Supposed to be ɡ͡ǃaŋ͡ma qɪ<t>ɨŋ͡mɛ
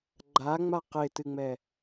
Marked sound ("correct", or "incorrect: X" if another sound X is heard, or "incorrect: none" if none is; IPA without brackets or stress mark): correct